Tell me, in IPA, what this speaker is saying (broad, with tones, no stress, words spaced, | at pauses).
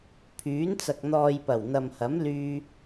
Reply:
pʰyː˨˥nt͡sɐ˨k̚ n̪ɔː˨jpɐ˨˩w n̪ɐ˨mhɐ˨˥m lyː˧